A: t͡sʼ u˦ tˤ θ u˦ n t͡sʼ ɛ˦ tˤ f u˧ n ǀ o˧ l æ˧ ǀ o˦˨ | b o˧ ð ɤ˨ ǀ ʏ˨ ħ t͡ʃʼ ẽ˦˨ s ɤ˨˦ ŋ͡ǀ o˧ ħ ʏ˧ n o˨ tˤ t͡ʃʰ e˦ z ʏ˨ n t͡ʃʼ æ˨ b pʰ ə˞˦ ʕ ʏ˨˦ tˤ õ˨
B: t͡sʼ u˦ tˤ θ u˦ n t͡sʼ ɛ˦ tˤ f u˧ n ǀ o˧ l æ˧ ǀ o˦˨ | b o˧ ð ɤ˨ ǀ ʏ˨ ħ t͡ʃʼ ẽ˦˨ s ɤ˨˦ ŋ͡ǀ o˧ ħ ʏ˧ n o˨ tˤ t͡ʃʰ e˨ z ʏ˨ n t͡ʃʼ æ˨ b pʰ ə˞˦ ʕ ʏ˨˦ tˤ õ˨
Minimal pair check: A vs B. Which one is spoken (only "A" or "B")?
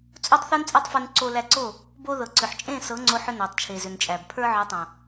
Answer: B